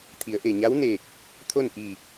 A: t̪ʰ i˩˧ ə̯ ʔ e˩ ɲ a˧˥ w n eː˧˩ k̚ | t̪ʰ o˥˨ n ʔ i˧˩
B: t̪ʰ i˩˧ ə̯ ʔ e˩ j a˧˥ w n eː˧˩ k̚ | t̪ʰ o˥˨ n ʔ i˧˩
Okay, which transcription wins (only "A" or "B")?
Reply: A